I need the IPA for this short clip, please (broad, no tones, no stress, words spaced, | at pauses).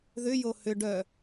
ðʏjo hʏ ɖœ